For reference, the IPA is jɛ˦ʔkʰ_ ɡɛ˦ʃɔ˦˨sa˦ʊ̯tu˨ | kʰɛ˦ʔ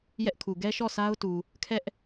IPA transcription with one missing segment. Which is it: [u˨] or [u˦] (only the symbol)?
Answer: u˨